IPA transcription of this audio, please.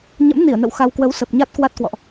ɲ ə̰˧˥ m n i˧˩ ə̯ n ə̰˧˨ w x a˧ w k w ə˨˦ w s ə˨˩ p̚ ɲ a˦˥ t̚ k w a˦˥ t̚ k w ɔ̰˧˨ ʔ

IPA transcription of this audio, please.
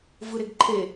v ɯ ɾ e ɡ ǃʰ e

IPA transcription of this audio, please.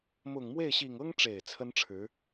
m ʊ˨˩ ŋ m w e˥˩ ɪ̯ ɕ i˨˩ ŋ ɤ˥ ŋ ʈ͡ʂ e˨˩ ɪ̯ t͡sʰ ə˥ n ʈ͡ʂʰ ɻ̩˧˥

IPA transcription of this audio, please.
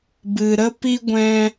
b ɨ˨ ɾ ə˦ p i˦ ɡʷ ɛ̃˧

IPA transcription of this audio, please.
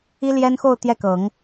i˥ l j ɛ˥ n x o˥˧ ʊ̯ t̪ j ɛ˥˩ k ɤ˨˩˦ ŋ

